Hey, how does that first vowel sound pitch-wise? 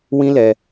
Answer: high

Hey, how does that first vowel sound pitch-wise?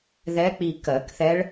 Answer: rising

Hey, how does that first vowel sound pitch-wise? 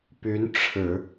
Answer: rising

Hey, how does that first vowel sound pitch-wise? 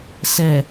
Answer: low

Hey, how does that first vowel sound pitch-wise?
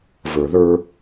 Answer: low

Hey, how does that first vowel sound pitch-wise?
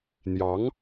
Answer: rising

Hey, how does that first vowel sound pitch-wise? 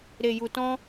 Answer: low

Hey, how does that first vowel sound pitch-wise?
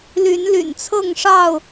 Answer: rising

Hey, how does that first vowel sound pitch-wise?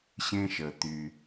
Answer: high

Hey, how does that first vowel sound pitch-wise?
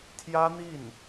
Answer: high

